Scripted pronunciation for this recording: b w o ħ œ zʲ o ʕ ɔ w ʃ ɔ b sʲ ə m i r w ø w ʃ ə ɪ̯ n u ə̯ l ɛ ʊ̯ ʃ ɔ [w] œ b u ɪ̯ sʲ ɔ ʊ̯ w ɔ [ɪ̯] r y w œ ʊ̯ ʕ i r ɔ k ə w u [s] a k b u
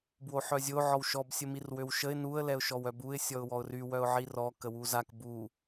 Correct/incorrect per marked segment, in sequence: correct, incorrect: ʊ̯, incorrect: z

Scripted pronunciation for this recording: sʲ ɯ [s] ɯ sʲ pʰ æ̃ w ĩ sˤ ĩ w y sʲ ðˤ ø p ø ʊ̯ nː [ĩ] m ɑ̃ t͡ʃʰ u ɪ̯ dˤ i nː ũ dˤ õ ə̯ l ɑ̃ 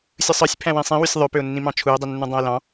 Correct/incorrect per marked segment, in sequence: incorrect: sˤ, correct

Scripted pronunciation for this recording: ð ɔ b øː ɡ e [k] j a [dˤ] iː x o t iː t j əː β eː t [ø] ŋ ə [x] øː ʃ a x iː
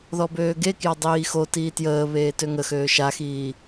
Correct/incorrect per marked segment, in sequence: correct, correct, correct, correct

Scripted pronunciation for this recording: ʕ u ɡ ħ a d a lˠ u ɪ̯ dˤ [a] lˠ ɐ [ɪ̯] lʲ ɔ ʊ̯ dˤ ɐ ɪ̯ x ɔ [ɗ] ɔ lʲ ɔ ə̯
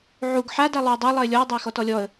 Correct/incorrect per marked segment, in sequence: correct, correct, incorrect: t

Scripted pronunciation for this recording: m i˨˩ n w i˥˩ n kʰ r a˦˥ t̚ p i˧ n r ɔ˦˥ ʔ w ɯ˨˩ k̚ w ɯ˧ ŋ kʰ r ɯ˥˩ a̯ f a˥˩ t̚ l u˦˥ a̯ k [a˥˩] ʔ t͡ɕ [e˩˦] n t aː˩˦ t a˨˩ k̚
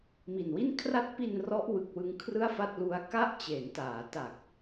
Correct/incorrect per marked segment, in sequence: correct, correct

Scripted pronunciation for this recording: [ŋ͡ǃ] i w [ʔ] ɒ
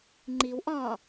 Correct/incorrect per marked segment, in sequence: correct, correct

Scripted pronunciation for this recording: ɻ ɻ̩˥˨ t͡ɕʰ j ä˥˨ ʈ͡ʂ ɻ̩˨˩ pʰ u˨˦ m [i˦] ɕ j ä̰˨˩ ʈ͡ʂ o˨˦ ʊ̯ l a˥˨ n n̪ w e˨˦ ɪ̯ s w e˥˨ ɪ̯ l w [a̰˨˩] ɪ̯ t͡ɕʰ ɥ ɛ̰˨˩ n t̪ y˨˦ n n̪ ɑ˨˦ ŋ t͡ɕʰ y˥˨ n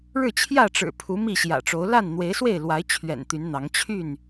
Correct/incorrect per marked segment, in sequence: incorrect: i˥˨, incorrect: a˨˦

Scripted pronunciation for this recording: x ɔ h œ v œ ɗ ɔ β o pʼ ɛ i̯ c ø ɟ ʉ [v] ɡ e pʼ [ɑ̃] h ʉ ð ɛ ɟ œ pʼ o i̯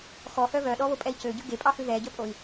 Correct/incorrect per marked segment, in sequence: incorrect: none, incorrect: ɑ

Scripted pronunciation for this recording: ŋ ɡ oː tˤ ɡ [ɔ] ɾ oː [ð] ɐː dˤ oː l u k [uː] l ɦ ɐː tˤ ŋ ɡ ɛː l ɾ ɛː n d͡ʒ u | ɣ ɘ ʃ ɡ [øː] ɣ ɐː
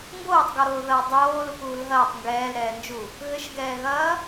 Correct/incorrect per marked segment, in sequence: correct, correct, correct, incorrect: ɛː

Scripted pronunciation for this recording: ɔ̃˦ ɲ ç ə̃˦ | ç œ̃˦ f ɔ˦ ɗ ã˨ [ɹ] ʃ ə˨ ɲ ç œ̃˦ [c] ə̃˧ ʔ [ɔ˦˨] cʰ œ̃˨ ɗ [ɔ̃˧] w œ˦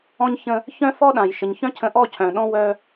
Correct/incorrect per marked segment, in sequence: incorrect: j, incorrect: cʰ, correct, incorrect: ɔ̃˦

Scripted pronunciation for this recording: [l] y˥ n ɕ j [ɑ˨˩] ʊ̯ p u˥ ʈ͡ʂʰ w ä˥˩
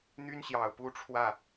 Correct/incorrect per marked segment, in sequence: incorrect: n̪, correct

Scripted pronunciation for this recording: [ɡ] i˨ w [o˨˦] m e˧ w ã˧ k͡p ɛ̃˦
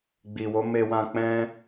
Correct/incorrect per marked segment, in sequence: incorrect: ɡ͡b, correct

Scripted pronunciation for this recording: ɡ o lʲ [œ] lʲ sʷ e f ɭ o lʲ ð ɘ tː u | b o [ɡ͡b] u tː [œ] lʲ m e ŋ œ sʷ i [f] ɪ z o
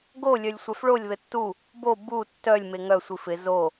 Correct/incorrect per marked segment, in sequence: correct, incorrect: b, correct, correct

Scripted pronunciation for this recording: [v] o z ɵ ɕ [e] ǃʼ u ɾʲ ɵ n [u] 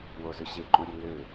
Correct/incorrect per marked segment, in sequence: incorrect: w, correct, incorrect: ø

